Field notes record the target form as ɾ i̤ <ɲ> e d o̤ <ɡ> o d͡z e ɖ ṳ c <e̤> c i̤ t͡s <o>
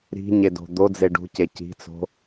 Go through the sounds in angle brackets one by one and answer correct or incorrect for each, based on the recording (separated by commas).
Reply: correct, incorrect, incorrect, incorrect